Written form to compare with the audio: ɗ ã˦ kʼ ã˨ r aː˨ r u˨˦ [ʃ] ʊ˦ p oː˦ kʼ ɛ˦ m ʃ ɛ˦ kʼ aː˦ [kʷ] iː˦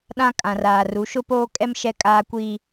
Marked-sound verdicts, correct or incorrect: correct, correct

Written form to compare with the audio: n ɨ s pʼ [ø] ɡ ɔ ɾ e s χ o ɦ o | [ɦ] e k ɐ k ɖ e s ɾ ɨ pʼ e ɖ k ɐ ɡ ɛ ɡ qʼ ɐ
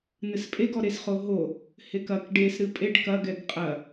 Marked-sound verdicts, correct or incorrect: incorrect: e, incorrect: h

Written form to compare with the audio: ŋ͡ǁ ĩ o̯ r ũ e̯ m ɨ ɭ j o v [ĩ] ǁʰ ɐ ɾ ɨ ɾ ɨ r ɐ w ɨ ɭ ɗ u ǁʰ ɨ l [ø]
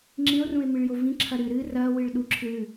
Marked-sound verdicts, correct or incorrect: correct, incorrect: ʉ

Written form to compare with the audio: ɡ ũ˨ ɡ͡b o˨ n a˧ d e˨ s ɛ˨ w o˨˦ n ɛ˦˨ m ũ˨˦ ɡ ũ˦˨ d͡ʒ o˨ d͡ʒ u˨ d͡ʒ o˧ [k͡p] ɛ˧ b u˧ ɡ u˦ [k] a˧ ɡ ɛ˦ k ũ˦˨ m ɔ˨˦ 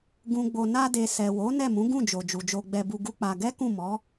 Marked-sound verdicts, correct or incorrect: incorrect: ɡ͡b, incorrect: k͡p

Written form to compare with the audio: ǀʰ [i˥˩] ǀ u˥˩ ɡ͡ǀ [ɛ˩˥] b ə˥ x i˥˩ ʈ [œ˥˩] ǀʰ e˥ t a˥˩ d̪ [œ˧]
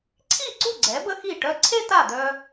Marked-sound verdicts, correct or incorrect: correct, correct, incorrect: œ˧, correct

